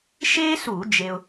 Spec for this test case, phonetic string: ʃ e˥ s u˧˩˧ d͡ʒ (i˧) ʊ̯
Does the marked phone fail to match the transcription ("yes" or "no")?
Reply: yes